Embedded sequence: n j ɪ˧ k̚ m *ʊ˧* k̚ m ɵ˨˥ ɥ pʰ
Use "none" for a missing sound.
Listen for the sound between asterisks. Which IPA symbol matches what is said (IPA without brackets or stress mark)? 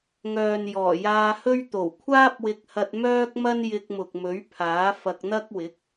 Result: ʊ˨